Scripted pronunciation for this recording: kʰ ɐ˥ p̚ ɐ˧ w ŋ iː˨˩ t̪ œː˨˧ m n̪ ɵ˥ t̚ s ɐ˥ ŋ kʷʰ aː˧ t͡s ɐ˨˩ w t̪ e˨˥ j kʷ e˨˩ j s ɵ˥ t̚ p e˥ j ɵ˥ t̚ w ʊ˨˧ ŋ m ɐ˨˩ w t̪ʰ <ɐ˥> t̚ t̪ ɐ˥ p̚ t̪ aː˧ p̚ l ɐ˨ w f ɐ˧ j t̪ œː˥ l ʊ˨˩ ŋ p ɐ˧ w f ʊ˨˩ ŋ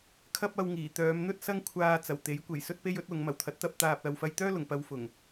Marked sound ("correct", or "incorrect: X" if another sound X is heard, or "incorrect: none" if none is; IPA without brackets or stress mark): incorrect: ɐ˨˥